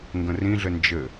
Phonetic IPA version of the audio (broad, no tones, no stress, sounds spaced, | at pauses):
ŋ ɡ ə̃ r ĩ ɮ ɘ n d͡ʒ ɘ